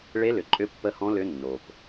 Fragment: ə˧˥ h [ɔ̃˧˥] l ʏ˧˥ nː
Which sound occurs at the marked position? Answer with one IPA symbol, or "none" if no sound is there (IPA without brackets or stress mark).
ɔ̃˧˥